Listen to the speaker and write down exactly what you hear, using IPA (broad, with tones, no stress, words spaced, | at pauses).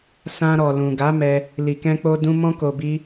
sã˧ɾɔ˨lũ˨ɡa˨˦ mɛ˦ | li˧kɛ̃˦k͡po˦dũ˦ mɔ̃˦ko˧bi˦